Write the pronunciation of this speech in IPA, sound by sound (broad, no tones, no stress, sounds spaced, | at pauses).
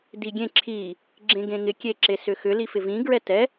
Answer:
d i ɡʲ ẽ ǁʰ i | ɡ͡ǁ ẽ ɡ ẽ ŋ ɪ kʲ e ǁ e s ʏ x ʏ l i f ɪ v ĩ ɡ ɹ ɛ t ɛ